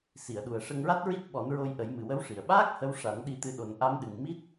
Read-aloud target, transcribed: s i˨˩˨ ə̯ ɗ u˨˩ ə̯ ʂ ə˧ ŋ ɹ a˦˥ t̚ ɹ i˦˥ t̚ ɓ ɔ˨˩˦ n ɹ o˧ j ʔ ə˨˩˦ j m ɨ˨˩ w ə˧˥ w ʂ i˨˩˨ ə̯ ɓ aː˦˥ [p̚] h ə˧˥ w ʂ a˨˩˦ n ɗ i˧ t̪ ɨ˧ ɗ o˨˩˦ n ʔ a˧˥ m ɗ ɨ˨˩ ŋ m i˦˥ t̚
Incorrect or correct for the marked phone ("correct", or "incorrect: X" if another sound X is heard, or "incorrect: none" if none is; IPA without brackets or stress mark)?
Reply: incorrect: k̚